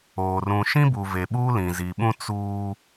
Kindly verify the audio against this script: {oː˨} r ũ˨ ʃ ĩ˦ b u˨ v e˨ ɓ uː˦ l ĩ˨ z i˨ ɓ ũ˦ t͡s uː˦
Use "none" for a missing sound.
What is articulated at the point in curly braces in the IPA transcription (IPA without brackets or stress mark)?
oː˨